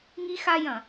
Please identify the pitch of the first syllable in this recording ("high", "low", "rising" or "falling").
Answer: high